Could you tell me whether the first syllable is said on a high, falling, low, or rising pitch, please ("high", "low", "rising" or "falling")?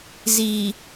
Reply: low